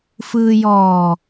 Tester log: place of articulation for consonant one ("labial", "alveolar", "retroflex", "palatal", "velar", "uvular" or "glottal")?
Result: labial